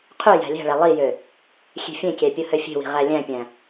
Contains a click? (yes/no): no